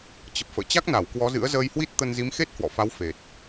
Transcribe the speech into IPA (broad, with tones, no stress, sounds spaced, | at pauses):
t͡ɕ ə˨˩ p̚ f ə̰ː˧˨ t͡ɕ a˦˥ k̚ n a˧˩ w k w ɔ˨˦ z ɨ̰˧˥ ə̯ z əː˧ j h w i˦˥ t̚ t̪ ə˧ n z i˨˦ m x e˦˥ t̚ h w ɔ̰˧˨ f a˨˦ w f e˨˩ t̚